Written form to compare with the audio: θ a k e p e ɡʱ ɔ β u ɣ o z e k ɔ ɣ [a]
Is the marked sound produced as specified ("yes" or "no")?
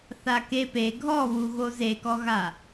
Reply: yes